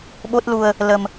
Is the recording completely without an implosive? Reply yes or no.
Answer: no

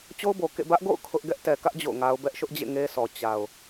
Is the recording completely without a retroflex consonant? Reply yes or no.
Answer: yes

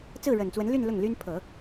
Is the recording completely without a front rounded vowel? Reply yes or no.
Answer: no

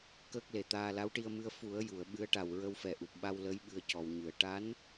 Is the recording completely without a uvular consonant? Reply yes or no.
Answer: yes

